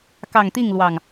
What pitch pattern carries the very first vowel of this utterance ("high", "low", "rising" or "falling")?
low